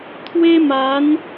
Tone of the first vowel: high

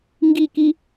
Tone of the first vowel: falling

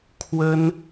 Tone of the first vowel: high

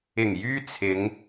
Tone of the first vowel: low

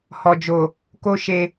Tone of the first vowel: low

